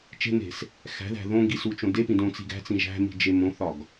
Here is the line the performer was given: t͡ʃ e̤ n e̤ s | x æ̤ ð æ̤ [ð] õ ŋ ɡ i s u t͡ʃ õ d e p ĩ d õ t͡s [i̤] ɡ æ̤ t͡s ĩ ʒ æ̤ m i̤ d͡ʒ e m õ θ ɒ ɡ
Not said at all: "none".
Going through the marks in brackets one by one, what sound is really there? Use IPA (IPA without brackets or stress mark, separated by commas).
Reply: ð, i̤